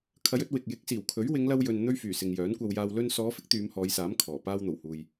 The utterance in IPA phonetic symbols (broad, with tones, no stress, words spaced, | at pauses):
kʰɐ˨˧jɵ˧t̚ wɪ˨k̚ jɪ˨˥k̚siː˨˩wkʰɵ˨˥ɥ wɪ˨˧ŋlɐ˧wjɵ˨n n̪ɵ˥ɥfyː˨˩sɪ˨ŋ jœː˨˥nkʷɐ˧wjaː˧w lɵ˧nsɔː˨˧ fɪ˥k̚t̪yː˨˧mhɔː˨˧jsaː˨˥m kʰɔː˨˩ paː˧wn̪o˨˩whuː˨j